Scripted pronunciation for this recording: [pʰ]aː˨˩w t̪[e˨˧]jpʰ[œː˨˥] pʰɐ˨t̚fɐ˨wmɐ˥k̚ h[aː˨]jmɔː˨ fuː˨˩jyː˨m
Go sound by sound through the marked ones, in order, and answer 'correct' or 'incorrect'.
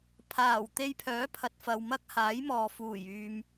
correct, incorrect: e˧, correct, incorrect: aː˨˥

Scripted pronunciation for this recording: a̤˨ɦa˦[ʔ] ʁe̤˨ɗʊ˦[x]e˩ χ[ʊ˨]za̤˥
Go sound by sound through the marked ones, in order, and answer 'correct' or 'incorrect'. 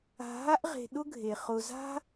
correct, incorrect: ɡʱ, correct

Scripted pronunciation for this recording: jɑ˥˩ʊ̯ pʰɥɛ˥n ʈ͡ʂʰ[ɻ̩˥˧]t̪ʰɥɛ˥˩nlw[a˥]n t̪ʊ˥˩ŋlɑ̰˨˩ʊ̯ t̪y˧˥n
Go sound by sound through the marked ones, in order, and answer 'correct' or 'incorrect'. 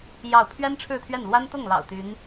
correct, correct

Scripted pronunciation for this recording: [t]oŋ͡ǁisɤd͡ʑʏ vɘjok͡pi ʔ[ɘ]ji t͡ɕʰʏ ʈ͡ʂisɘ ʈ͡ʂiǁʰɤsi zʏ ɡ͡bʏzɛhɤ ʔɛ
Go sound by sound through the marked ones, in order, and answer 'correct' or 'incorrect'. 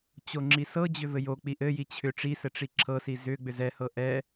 incorrect: t͡ɕ, correct

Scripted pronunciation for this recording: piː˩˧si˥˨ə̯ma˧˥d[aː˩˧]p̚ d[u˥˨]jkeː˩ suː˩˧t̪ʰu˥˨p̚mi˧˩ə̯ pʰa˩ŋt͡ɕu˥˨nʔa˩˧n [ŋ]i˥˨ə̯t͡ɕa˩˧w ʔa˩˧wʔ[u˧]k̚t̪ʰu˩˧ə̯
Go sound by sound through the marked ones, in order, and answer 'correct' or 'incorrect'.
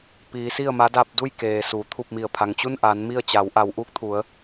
incorrect: aː˧, correct, incorrect: m, incorrect: uː˧

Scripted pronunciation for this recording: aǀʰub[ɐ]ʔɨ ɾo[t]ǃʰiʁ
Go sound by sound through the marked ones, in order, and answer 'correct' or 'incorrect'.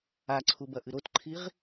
correct, correct

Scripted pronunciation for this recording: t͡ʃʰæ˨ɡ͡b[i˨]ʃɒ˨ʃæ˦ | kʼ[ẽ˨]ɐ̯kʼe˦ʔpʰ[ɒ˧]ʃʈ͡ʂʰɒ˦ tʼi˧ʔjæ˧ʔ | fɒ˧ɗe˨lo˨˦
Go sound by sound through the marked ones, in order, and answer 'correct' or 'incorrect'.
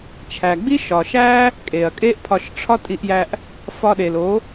incorrect: i˦, incorrect: e˨, correct

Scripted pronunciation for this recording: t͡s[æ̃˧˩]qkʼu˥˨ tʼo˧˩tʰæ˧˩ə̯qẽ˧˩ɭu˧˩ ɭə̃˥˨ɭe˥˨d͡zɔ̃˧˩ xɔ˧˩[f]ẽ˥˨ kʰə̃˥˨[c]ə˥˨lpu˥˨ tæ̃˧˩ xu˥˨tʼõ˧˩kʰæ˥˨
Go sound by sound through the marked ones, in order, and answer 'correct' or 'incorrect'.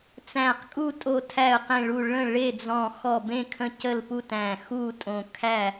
correct, incorrect: b, correct

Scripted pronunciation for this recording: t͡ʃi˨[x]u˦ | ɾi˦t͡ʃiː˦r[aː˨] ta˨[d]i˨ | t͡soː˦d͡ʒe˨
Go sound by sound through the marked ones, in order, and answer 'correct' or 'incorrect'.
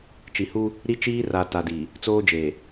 incorrect: h, incorrect: a˨, correct

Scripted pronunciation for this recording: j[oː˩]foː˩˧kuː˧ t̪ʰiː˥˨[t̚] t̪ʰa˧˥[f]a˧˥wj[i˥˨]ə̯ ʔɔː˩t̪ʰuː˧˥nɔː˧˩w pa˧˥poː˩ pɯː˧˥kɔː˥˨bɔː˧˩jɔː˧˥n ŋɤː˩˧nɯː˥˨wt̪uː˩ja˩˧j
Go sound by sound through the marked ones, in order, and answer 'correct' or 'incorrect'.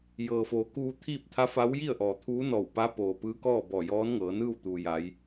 incorrect: ɤː˩, incorrect: p̚, correct, correct

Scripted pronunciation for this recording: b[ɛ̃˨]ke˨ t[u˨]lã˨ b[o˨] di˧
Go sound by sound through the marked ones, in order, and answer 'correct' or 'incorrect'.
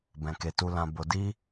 correct, correct, correct

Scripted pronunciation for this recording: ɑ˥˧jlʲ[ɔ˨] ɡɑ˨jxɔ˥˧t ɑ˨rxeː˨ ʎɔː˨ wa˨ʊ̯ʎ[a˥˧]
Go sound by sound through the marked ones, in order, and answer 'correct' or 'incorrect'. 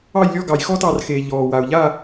incorrect: ɔ˥˧, correct

